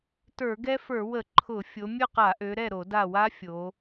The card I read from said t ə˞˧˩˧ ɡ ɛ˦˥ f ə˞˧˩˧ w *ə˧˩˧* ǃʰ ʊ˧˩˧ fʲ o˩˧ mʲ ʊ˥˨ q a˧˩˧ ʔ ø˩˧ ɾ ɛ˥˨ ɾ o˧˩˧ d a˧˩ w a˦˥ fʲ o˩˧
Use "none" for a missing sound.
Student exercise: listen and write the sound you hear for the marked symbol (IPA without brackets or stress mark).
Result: ə˧˩˧